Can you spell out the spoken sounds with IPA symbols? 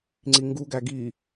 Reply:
ŋ͡ǀ i ŋ ɡ u ɡ æ ɡ i

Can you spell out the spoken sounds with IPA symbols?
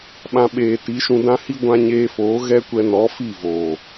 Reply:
ɓ ã˧ ɓ eː˨ t i˨˦ ʃ ũ˧ d ã˦ h i˦ ɡʷ ã˧ ɲ eː˧ f oː˨˦ ɣ ɛ˦ kʷ ɛ˧ n ɔ˨˦ f i˦˨ v oː˨

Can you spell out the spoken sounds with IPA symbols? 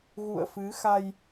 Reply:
ɣ ṵ˧˨ ə̯ f ɨ˨˦ x a˧ j

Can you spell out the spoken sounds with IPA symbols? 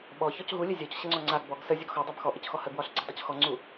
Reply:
ɓ ɔ ç ɔ c ɦ u lʲ ə zʲ ɔ c ɕ ə ŋ͡ǀ ɔ ŋ͡ǀ a ɡ b ɔ ɡ s ə zʲ ɒ ɡ x ɔ dˤ a b x ɔ ʔ ə c x ɔ h ə ɡ w ɒ ɬ ɡ͡ǀ ə dˤ u c x ɔ ŋ͡ǀ u

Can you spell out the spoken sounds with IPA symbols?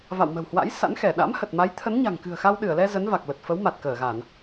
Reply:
v a̰˧˨ w m ə̤˨˩ w h w a̰˧˥ j s a̰˧˥ n x ɛ˧˩ ɗ a̰˧˥ m h ə˨˩ t̚ m a˨˦ j t̪ʰ ə˨˦ n ɲ a̤˨˩ ŋ k ɨ̤˨˩ ə̯ x a˧ w ɗ ɨ˧˩ ə̯ l ɛ˧ z ə˨˦ n v a˨˩ k̚ l ə˨˩ t̚ f ə˨˦ w m a˨˩ t̚ k əː˧˩ ɣ a˧˩˨ n

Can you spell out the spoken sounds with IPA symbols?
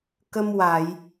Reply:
k ə˧ m w a˨˩˨ j

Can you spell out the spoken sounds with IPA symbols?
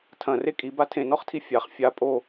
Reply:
tʰ ɐ̃ r e kʼ i b a tʰ ẽ n ɔ χ tʰ i fʲ a χ fʲ a pʼ o

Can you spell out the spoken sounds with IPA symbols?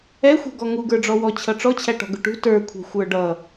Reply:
ɛ xʷ ɛ̤ ɡ ɔ ŋ u ɡ ə˞ ɖ͡ʐ ɔ w ɔ t͡ɕʰ ʌ ʈ͡ʂ ɔ t͡ɕʰ æ ʈ ɔ̤ ɡ ʊ ʈ ṳ t ə˞ kʷʰ ɛ̤ xʷ ə˞ ɖ ʌ

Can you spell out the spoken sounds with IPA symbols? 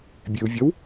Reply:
bʲ e ʊ̯ vʲ ɐ w

